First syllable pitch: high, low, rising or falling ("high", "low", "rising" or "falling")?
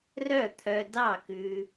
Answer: falling